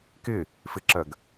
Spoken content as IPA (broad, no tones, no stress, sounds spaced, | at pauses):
k ɪ | f ɪ ǁ ɜ ɡ